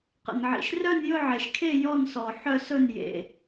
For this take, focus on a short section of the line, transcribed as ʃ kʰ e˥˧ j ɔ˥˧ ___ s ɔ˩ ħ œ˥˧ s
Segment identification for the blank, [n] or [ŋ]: n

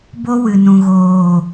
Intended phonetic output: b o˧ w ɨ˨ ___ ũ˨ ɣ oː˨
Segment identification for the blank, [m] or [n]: n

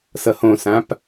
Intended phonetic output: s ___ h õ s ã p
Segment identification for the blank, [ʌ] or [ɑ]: ʌ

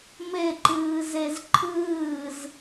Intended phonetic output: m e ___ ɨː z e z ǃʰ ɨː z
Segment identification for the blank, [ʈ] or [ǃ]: ǃ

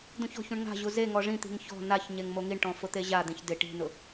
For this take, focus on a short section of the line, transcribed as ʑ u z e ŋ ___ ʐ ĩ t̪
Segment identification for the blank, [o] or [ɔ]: ɔ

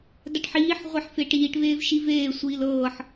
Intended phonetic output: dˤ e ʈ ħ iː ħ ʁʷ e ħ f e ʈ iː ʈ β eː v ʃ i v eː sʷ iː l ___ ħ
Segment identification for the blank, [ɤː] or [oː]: ɤː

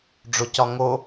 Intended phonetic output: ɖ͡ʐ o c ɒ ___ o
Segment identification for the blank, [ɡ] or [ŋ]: ŋ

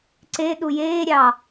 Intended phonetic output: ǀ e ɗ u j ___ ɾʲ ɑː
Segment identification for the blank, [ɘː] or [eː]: eː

